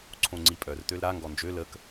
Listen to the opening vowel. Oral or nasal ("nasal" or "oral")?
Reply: nasal